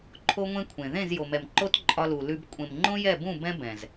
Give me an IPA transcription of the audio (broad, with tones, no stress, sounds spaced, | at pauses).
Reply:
ǃʰ o˦ ŋʷ ẽ˦ kʷʰ ẽ˨ ð ẽ˦˨ z j o˨ m ɛ˨ m ǃ o˦ t ǃʼ ɒ˧ l u˨ l ʉ˧ b kʷʼ ẽ˨ m ŋ͡ǃ õ˦ j ɛ˦˨ b ũ˦˨ b ɛ̃˦ b ɛ̃˨ z